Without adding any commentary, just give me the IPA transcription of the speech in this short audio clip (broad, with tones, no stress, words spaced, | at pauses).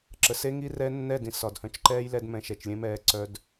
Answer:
ǁə˨se˦ ŋi˦rɛ˦ nːɛ˦˨dĩ˨s ɒ˨dhœ̃˧t͡ʃǃɛː˦jlɛ˧d mɛ̃˧ʃɛ˨t͡ʃlʲẽ˦ mɛː˧ǀœ˧d